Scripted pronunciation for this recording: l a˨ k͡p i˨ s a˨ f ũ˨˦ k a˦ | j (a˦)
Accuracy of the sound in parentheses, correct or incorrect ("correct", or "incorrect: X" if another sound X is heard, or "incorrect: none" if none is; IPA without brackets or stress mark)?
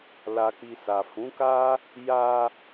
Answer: incorrect: a˧